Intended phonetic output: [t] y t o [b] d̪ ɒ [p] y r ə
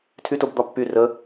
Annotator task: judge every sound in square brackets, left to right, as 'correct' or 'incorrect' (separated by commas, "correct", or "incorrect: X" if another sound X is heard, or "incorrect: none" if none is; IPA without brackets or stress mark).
incorrect: tʰ, correct, incorrect: pː